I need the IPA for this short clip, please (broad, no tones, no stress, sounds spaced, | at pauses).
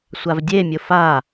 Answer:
sʷ a v dʲ e mʲ ʊ f a